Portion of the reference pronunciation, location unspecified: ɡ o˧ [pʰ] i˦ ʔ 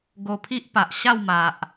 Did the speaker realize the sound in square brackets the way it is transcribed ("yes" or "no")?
yes